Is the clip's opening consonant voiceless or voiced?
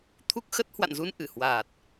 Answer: voiceless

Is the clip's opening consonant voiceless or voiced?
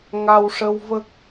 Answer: voiced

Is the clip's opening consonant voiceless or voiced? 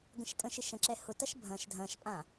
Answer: voiced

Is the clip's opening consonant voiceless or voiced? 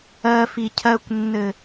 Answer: voiceless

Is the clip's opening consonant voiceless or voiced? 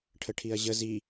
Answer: voiceless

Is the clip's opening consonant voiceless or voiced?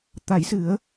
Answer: voiceless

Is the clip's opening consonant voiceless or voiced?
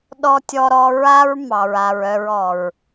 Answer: voiced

